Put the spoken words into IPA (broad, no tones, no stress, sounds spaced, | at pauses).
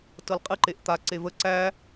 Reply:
t ɤ l qʼ ɨ ǃ e ʔ t̪ a ǀ e v ə ǀ æ